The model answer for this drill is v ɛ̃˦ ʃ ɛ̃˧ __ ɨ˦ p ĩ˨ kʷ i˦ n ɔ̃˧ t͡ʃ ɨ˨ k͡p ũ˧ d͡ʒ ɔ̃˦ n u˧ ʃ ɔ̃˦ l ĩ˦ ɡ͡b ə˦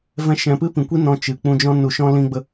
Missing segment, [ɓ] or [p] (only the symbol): p